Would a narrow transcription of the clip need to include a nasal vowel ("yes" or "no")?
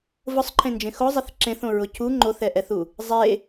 yes